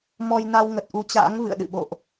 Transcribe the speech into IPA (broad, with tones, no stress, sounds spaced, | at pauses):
m ɔ˧ j n a˧ w ŋ ə˨˩ t̚ ʔ u˨˦ t͡ɕ a̰ː˧˥ ŋ v ɨ̰˧˨ ə̯ ɗ ɨ̰˧˨ ɓ o̰˧˨ ʔ